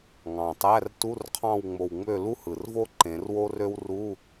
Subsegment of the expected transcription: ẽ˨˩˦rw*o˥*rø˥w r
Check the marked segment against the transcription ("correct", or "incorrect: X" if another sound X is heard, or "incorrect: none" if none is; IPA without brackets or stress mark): correct